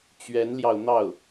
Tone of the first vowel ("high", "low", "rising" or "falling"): rising